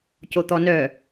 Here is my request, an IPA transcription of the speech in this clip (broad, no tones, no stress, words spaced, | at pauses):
cot̪ɔnœ